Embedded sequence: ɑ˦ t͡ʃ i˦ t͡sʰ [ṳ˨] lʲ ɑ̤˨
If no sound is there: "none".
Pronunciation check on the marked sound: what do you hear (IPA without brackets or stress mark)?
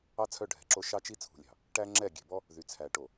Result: ṳ˨